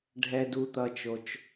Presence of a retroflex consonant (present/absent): present